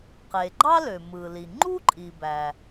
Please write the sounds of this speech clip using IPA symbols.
qe˩ɡ͡ǃɑ˥lø˩ mɯ˩li˩ ŋ͡ǃu˥ǃʼi˩bæ˩

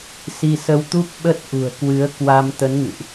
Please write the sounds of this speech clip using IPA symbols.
si˧sə˧wt̪u˦˥p̚ ɓə˦˥t̚ ʔṳ˨˩ə̯kwɨ˨˦ə̯ kwa˧m t̪ə˨˦nŋɨ̰˧˨ʔ

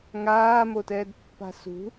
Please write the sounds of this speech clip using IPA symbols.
ŋaːmotɛːdpːa̤ sṳ

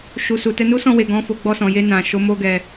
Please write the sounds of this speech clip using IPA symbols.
ʃu˨su˨ tɛ˧nu˦sɔ̃˦˨we˨ ɡɔ̃˨˦fo˧ ɡ͡bɔ˧sɔ̃˨je˧ nã˨ʃo˨˦ mo˦ɡɛ˧

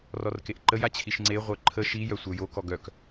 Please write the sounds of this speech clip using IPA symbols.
rɔrkeʔǃəj at͡ɕʰiʃŋ͡ǀe ʁʷœǃʰə ʃi jœsʷœjo kɔɡœk

